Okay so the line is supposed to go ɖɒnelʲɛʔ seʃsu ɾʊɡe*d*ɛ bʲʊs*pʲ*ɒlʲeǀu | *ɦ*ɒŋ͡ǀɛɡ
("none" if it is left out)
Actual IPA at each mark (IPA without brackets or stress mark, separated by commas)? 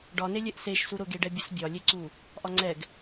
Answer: ɖ, bʲ, ʔ